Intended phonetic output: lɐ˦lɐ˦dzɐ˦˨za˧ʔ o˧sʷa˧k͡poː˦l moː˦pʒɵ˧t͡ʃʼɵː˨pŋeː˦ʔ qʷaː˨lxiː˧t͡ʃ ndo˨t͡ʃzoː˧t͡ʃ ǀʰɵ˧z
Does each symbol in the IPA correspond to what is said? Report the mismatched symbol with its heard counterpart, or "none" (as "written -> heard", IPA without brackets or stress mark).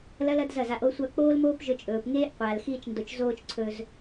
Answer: none